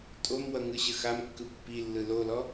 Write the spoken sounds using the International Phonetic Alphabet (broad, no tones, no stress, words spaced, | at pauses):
tʼomwʌŋɯɕə xamkːɯ pːilːɯ lolɔ